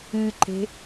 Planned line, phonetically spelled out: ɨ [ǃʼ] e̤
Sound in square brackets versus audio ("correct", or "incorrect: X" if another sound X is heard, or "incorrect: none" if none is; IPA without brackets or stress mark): incorrect: ǃ